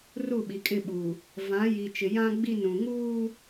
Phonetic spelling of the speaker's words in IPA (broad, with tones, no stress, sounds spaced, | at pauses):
r u˦˨ ɓ i˨ kʼ ɪ˦˨ ɓ uː˨ | v ã˨˦ j i˨ t͡ʃ ɪ˨ j ã˦ ɡ͡b i˦˨ n ũ˨ ŋ uː˦